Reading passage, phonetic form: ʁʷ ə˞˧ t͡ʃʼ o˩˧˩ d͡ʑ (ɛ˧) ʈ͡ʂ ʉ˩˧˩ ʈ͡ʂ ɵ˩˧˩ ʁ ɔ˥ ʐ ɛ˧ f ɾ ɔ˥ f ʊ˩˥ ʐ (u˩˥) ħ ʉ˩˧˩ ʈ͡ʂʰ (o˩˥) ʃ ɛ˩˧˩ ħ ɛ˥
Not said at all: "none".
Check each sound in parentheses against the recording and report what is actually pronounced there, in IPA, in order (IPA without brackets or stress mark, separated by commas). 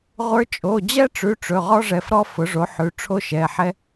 ɛ˥, o˩˥, o˥˧